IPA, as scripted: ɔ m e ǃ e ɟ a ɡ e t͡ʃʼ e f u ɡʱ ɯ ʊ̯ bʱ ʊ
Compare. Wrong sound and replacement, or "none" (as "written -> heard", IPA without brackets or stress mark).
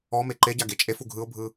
ʊ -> ɯ